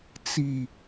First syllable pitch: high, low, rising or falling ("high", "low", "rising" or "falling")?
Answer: low